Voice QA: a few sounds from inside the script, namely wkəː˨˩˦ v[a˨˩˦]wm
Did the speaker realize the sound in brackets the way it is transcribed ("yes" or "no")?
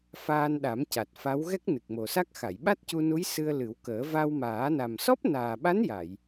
no